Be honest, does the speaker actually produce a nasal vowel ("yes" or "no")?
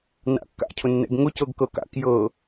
no